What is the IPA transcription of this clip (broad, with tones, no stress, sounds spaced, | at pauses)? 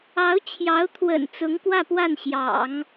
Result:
ɑ˧˥ ʊ̯ t͡ɕʰ j ɑ˧˥ ʊ̯ t̪ʰ w ə̰˨˩ n t͡s ʊ˧˥ ŋ k w ä˥˧ p w a˥˩ n ɕ j ɑ̰˨˩˦ ŋ